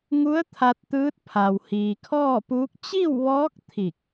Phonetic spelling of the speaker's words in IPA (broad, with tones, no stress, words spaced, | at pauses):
ŋu˧˥ə̯ t̪ʰa˧t̚t̪ɯː˧˥t̚ pʰa˩w hiː˩kʰɔː˥˨puː˧˥k̚ t͡ɕi˥˨wʋɔː˧˥k̚ t̪ʰi˧˩k̚